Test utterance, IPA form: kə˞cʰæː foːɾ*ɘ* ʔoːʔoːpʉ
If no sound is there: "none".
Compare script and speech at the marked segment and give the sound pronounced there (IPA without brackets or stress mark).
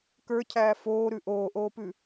ʉ